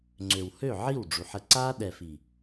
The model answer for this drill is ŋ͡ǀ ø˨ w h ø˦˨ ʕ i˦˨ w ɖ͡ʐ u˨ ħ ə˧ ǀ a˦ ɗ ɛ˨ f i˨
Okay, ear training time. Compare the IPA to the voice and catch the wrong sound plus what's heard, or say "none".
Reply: none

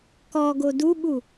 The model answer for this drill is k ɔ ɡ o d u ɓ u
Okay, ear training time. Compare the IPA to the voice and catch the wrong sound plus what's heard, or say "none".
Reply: none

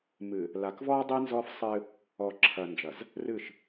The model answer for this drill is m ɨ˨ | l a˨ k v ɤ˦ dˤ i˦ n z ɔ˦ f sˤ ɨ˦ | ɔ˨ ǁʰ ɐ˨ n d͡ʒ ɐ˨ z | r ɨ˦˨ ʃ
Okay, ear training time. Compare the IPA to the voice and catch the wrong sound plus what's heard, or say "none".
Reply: ɤ˦ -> ɔ˦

